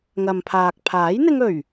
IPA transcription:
ŋ ɐ˨ m pʰ aː˨ k̚ pʰ aː˨˥ j n̪ ɪ˧ ŋ ɵ˨˩ ɥ

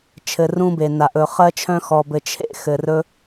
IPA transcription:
t͡ʃʰ ɘ˩ r ũ˧ b e˩ n a˩ ʔ ɵ˩ χ ɜ˧ t͡ʃʰ œ̃˧ x ɔ˩ b ɘ˩ t͡ʃʰ ḛ˧ x ɘ˩ r ɵ˧

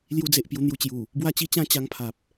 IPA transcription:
l j u˧ d͡z e˨ ʔ p j u˧ n̪ j u˧ t͡ɕ j u˨˩ | b w a˥˧ t͡ɕ i˥˧ t͡ɕ ã˥˧ t͡ɕ a˧ ŋ pʰ a˨ p̚

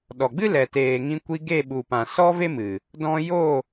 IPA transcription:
ɗ ɔ˨ ɡ͡b ɨ˦ l ɛ˨ t eː˨ ŋ ĩ˧ kʷ i˧ ɡ e˦˨ ɓ u˨ p ã˨ s ɔ˦ v e˦ m ɨ˨ | d ɔ̃˧ j o˦˨

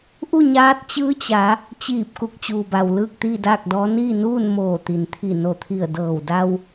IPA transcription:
ʔ u˥˨ ɲ aː˧˥ t̚ t͡ɕ ɯː˧˥ t͡ɕ a˩˧ | t͡ɕ iː˧˩ p̚ k u˧˩ k̚ t͡ɕ uː˩ b a˩ w l ɯː˥˨ k̚ t̪ iː˥˨ d aː˥˨ k̚ d ɔː˧˥ n iː˥˨ n uː˥˨ n m oː˧˩ t̪ i˩ n t̪ʰ i˧˩ n o˧˩ t̪ʰ i˧˩ ə̯ d ɤː˧˩ w d a˧ w

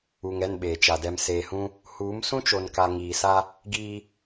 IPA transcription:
u˨ ŋ ɛ˦˨ n ɓ eː˨ t͡ʃ a˨ d ɛ˨ m s eː˨ h ũ˦ | h uː˨˦ m s ũ˦ t͡ʃ o˨ n k a˨ ŋ iː˨ s a˦ | ɡ iː˦

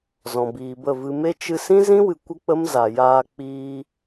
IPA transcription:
z ɔ̃˨ b iː˨ b ə˦˨ v ɨ˧ m e˦ t͡ʃ ɨ˧ s ĩ˦ z ĩ˦ w ɨ˨ kʷ ə˦ k͡p ə˦ m z a˨ j aː˧ k͡p iː˧

